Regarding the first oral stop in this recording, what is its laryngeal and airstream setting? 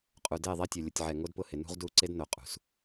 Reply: ejective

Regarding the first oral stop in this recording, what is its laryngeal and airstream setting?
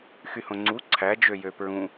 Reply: click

